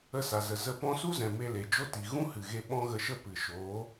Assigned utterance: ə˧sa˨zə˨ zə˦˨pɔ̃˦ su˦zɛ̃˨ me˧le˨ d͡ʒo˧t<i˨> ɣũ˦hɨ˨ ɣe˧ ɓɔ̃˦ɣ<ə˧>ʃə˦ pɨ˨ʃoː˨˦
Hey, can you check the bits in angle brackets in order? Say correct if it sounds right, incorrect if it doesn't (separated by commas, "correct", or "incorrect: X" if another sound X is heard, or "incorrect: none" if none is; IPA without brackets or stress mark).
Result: correct, correct